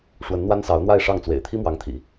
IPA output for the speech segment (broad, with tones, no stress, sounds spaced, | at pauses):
ʂ w ə˧˥ n n̪ w a˥ n s ɑ˧˥ ʊ̯ n̪ w a˥˧ ɪ̯ ʂ ɑ˥˩ ŋ t͡s w ḛ˨˩ ɪ̯ t̪ʰ i˥ m w ɑ˧˥ ŋ t̪ʰ ḭ˨˩˦